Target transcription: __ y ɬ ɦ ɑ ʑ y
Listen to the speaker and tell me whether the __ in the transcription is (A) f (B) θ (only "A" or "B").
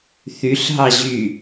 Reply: B